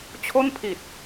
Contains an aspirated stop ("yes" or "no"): yes